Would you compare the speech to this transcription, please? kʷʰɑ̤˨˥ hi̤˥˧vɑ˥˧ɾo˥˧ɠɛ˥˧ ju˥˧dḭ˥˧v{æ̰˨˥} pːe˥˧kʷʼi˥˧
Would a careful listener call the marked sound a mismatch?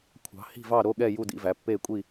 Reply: yes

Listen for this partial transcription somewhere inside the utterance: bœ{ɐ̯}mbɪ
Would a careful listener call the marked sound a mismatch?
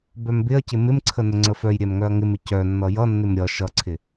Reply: yes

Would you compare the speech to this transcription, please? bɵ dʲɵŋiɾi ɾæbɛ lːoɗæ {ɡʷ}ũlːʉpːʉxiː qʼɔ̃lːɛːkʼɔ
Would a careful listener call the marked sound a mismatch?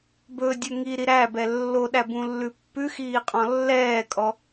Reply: yes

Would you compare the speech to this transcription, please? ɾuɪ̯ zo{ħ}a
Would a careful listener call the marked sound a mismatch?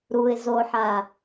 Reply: no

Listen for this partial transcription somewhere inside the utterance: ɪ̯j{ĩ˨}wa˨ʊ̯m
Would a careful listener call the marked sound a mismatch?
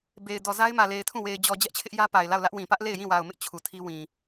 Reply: yes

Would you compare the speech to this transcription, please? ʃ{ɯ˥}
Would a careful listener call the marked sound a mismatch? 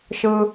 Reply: no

